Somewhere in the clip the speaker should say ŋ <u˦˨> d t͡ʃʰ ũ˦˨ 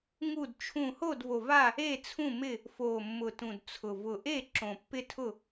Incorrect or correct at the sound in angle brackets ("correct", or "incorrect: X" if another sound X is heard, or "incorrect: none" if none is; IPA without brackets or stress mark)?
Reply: correct